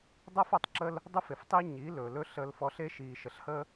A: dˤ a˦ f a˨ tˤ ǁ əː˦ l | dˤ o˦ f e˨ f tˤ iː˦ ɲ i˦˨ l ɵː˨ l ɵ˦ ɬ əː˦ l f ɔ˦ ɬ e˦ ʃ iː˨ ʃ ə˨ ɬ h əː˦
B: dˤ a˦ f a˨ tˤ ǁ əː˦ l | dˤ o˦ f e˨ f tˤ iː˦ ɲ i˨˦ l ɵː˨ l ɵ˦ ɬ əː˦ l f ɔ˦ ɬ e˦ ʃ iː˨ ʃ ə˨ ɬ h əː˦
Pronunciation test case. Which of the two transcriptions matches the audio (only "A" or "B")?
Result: B